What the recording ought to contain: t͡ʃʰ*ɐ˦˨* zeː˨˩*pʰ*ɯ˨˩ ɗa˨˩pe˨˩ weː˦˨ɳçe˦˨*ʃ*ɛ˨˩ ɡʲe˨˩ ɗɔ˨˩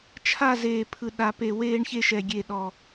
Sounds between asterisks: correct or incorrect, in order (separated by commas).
incorrect, correct, correct